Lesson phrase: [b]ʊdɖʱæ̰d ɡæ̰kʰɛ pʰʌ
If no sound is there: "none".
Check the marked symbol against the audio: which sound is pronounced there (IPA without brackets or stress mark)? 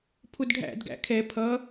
pʰ